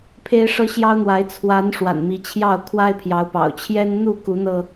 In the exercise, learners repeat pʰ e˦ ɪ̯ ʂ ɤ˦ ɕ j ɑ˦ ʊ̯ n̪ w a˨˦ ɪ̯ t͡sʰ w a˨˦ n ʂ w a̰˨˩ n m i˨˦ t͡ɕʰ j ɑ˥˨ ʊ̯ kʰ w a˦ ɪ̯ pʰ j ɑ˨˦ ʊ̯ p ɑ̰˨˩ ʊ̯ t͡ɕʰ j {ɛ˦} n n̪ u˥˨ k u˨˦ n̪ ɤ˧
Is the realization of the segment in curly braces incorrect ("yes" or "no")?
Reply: no